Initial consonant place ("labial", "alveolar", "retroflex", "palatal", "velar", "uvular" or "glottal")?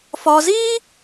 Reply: labial